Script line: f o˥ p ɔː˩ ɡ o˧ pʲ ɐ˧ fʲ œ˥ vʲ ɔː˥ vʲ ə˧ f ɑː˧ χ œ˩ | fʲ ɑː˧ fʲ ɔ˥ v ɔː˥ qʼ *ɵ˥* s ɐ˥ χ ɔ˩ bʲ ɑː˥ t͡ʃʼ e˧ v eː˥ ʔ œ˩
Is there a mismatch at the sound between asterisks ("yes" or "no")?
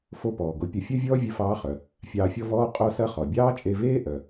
yes